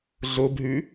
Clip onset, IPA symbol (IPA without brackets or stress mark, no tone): ɮ